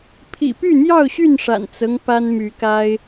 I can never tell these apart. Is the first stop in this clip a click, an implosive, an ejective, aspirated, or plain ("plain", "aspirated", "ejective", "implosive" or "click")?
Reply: aspirated